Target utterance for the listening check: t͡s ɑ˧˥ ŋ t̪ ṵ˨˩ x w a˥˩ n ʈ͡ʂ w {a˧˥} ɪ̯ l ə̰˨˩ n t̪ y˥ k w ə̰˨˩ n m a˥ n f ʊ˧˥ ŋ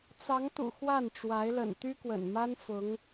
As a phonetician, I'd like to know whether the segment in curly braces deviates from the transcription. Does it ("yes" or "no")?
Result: no